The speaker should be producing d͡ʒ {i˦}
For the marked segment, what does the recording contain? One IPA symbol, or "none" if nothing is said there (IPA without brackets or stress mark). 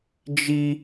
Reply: i˦